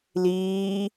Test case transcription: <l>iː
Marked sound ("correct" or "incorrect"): correct